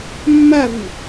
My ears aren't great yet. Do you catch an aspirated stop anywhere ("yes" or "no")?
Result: no